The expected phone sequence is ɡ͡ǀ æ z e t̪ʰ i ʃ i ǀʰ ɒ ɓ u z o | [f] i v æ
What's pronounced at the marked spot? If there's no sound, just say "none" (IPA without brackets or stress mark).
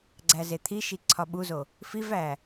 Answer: f